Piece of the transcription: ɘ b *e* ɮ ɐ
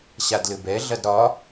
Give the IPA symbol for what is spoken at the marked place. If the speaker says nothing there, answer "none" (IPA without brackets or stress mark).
ɛ